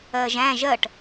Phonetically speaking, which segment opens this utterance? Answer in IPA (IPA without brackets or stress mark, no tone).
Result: ɜ